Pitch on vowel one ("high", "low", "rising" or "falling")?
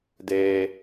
high